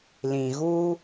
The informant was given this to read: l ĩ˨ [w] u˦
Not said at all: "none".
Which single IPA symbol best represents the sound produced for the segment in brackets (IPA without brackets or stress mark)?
ɣ